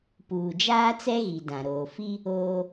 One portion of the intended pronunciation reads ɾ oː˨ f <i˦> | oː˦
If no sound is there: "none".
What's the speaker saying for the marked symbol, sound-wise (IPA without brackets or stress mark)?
i˦